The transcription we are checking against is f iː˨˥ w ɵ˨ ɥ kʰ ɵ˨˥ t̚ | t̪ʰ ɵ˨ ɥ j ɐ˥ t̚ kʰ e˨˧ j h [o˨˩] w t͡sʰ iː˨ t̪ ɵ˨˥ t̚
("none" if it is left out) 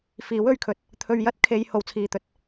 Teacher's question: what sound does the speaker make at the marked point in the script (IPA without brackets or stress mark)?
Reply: o˨˩